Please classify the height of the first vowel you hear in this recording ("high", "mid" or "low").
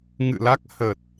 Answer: high